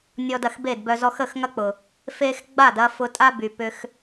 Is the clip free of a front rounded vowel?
no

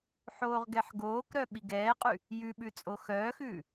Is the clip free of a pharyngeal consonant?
no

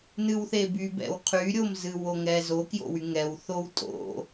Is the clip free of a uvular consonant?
no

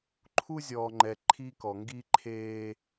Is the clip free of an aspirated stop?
no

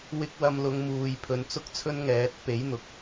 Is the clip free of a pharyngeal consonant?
yes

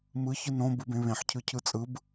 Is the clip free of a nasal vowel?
no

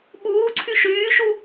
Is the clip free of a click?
no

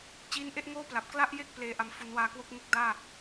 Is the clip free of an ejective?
yes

